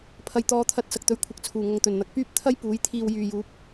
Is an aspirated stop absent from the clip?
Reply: no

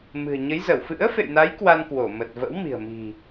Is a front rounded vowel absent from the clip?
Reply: yes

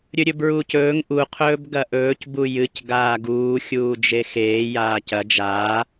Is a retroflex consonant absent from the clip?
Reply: yes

